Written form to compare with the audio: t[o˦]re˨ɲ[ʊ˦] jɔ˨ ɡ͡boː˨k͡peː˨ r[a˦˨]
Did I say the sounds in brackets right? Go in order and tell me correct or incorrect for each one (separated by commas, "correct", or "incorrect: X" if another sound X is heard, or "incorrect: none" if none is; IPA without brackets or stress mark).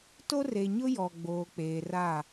correct, correct, correct